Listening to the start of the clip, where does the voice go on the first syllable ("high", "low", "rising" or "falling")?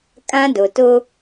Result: high